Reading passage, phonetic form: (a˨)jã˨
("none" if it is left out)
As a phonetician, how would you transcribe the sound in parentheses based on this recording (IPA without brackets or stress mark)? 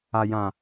a˨